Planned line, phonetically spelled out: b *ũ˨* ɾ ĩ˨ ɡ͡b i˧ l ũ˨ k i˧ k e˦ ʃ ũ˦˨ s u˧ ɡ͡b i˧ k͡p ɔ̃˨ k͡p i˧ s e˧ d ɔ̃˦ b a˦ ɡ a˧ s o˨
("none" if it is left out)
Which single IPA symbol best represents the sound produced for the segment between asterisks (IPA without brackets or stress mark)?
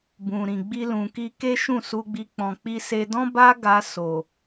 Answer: ũ˨